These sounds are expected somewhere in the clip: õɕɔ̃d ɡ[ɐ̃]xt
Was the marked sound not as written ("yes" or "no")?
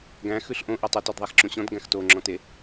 yes